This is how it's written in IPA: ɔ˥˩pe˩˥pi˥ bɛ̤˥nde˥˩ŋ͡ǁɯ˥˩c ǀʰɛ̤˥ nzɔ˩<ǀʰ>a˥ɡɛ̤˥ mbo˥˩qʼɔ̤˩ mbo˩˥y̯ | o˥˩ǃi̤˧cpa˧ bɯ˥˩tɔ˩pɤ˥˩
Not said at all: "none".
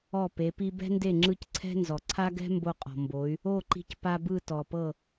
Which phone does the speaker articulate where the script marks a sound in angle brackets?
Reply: ǀʰ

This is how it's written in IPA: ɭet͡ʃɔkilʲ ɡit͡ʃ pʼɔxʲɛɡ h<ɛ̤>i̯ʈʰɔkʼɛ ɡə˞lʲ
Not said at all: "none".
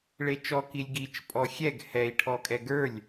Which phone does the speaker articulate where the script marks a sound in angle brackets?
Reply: ɛ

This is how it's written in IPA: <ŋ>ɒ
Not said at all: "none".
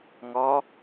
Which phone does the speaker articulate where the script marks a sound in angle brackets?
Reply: ŋ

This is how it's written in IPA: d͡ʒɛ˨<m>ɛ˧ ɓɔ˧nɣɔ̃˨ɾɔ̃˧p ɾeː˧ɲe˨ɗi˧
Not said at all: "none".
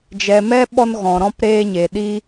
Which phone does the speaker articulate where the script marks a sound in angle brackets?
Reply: m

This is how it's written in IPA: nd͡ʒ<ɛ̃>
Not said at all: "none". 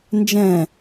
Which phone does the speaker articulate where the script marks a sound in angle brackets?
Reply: ɛ̃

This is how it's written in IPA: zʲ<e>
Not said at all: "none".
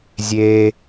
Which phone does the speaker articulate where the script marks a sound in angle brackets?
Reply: e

